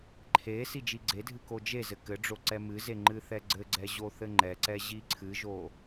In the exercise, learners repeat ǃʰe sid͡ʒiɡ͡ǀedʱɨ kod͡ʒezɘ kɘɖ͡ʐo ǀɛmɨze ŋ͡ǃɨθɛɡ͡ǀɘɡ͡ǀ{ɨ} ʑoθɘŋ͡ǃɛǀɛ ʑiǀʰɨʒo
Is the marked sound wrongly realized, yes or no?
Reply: yes